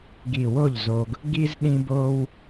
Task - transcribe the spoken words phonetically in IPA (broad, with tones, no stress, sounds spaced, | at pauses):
ɡ i˧˩ w o˥˩ ʎ z o˧ ɡ | ɡ i˥ z ɗ ĩ˥ b o˥ w